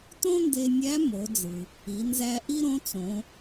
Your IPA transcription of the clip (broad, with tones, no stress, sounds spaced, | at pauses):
t õ˥ n d e˧ nʲ æ˧˥ m o˩˧ d͡z ɯ˩ | i˩˧ n z æ˧ ʔ i˥ ɾ õ˧˥ t͡s õ˩˧